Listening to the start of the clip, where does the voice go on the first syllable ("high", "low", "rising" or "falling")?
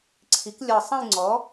rising